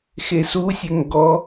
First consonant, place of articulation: velar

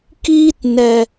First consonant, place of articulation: velar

